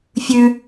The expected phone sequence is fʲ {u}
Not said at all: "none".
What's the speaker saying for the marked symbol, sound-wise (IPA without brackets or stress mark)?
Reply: ʉ